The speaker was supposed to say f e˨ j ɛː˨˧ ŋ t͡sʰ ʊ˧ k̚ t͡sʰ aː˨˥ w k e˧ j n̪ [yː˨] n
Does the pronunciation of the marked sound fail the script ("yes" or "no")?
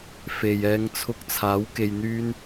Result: yes